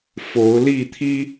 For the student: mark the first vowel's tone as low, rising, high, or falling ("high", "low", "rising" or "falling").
rising